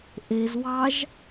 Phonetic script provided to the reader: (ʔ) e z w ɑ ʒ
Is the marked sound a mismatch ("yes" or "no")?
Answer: no